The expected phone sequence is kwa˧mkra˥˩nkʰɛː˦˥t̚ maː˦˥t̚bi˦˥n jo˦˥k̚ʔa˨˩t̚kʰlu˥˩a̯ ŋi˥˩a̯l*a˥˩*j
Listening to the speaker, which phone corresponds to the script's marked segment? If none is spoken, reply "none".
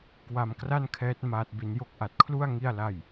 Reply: a˥˩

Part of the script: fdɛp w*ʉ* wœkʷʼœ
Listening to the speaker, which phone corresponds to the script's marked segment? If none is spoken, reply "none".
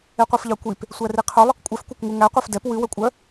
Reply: ʉ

